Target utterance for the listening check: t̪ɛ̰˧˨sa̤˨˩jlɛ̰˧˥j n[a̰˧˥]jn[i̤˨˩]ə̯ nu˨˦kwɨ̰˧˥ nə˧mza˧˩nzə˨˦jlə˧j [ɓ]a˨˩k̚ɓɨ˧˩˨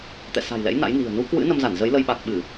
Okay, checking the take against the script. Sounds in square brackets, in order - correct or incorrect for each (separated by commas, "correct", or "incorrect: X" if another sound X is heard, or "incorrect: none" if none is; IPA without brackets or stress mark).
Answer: correct, correct, correct